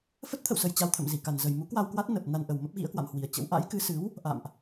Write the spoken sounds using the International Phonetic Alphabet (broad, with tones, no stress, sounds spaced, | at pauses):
f ə˦˥ t̚ t̪ʰ ə̰˧˨ w s ə˨˩ j t͡ɕ a˧ w t̪ʰ ə̰˧˨ m z i˧˩ k a˨˩ n z ə˨˩ j m u˨˦ k w a˧ w k w a˦˥ t̚ n ə˨˩ p̚ n a˧ n ʔ ə˨˩ w m ə˦˥ p̚ ɣ ḭ˧˥ ə̯ k w a̰˧˨ m h w i˨˩ ə̯ t͡ɕ ə̰˧˥ w ʔ a̰˧˥ j k ɨ˨˦ s ɨ˨˦ w | ʔ a̰˧˨ m ʔ